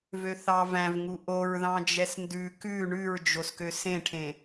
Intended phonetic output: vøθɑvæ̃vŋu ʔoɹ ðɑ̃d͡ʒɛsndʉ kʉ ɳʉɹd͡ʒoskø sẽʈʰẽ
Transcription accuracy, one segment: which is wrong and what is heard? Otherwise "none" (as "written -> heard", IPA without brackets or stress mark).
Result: none